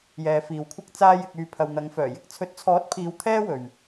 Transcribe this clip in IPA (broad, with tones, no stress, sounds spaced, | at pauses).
j ɛː˨ f iː˨ w kʷʰ ɐ˥ k̚ t͡s aː˧ j ɪ˨ k̚ yː˨ pʰ ɐ˨ w n̪ ɐ˨˧ ŋ f œː˨˩ j ɪ˧ k̚ t͡sʰ ɵ˨˥ t̚ t͡sʰ ɔː˨˥ t̚ pʰ iː˨˧ w t̪ʰ ɛː˥ w ɵ˨ ɥ